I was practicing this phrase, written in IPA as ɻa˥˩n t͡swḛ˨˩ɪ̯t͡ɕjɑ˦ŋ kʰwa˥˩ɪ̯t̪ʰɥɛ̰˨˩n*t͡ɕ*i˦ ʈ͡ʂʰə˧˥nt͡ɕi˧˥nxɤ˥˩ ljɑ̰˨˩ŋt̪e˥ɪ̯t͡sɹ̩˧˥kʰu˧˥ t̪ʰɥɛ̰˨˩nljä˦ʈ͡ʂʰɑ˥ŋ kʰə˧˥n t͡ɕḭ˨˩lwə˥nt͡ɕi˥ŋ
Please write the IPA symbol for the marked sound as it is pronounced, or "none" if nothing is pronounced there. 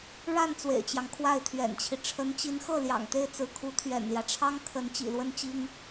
t͡ɕʰ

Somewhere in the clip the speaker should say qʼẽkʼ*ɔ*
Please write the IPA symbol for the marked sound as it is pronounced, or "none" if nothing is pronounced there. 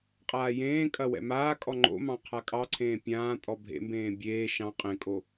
o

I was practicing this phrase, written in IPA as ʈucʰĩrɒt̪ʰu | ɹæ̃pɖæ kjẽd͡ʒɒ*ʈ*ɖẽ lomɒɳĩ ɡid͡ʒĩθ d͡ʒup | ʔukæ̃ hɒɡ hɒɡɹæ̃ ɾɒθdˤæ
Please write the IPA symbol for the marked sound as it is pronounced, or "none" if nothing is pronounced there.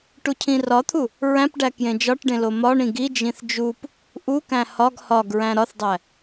ʈ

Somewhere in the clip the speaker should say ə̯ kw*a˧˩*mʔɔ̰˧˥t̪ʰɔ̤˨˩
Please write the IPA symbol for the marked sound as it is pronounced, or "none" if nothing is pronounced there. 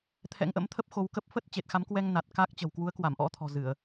a˧˩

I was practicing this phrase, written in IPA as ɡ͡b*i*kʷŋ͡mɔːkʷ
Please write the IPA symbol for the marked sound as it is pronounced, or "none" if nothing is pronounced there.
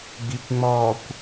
i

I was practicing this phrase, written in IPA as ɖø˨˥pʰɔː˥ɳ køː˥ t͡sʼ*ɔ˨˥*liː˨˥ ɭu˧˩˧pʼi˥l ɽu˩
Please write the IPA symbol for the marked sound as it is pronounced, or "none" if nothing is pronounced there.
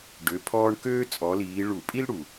ɔ˨˥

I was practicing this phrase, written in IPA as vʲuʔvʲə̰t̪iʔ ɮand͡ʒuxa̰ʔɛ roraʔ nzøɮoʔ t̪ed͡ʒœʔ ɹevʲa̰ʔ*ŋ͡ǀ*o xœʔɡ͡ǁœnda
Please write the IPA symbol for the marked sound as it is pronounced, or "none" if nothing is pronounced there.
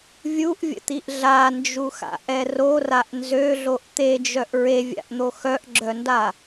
n̪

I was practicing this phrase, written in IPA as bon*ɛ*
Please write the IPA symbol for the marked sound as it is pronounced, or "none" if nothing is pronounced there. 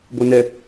ɛ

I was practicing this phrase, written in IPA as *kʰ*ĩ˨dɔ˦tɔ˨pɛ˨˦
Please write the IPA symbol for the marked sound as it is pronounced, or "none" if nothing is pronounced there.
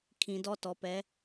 kʰ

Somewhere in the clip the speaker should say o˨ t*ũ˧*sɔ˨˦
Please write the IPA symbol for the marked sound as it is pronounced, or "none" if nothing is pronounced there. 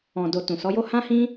ũ˨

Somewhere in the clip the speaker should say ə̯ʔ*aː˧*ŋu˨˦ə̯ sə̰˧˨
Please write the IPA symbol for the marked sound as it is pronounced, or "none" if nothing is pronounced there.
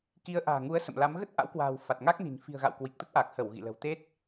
a̤ː˨˩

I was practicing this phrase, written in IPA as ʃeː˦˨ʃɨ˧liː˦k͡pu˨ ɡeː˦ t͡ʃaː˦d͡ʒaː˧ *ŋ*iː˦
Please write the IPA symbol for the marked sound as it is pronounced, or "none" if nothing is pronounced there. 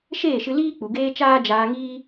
ŋ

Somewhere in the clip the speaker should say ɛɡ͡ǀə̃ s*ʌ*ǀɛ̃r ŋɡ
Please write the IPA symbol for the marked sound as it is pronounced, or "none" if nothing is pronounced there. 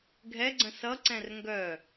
ʌ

